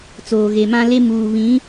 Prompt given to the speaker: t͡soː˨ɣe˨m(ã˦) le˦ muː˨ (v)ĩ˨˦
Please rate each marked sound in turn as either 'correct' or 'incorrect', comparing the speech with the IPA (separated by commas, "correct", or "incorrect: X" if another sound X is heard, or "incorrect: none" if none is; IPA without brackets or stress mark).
correct, incorrect: β